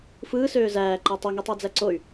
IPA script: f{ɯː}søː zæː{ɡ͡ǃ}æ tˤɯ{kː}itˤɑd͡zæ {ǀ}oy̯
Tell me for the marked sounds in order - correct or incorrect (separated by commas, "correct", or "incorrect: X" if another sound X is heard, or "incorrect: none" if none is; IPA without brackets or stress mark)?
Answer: correct, incorrect: ǃ, incorrect: ŋ, correct